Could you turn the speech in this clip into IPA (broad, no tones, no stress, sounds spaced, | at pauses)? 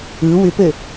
ɯ w ʏ p ɘ